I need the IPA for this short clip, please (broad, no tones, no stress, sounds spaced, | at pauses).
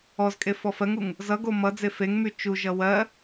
ɔ z kʼ e f ɔ f ɜ ŋ u ŋ | z ʌ ɡ o m ʌ d͡z e f e ŋ m y t͡ʃ u ʒ ʌ w ɜ